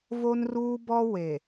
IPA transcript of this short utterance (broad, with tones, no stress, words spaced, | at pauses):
vo˦nruː˦bɔ˦ we˨